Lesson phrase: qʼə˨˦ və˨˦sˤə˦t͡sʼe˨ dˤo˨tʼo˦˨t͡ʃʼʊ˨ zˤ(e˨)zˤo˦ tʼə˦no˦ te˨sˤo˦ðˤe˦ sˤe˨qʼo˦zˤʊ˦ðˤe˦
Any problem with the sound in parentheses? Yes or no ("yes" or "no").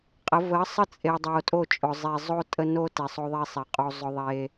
no